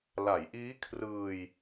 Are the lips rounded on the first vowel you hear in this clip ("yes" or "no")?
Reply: no